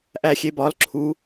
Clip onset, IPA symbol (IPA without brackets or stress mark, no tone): ʔ